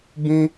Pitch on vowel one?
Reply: high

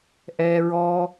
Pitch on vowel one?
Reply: low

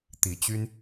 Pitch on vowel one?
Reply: rising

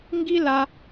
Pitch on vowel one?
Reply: high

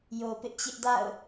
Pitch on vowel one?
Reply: low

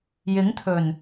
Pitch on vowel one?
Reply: rising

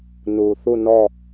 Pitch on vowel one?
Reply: low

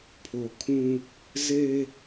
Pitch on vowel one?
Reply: low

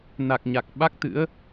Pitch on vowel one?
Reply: low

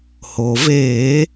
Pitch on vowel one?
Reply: low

